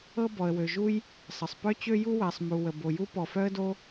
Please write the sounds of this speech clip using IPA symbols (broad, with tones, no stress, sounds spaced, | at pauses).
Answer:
ɤ˥ b ɔ˩ ə̯ w ø˩ ʒ u˥ j | sˤ ə˩ sˤ p œ˥ t͡ɕ ø˥ j u˥ w ɛ˩ sˤ m u˩ w ə˩ b o˩ j u˥ p ɔ˩ f œ˥ ə̯ d o˥